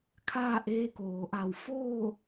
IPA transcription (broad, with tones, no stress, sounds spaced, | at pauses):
kʰ aː˥˨ ʔ eː˧ k oː˩ ʔ a˧˩ w f oː˥˨